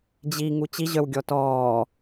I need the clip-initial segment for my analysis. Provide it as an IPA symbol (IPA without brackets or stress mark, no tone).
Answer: d͡ʑ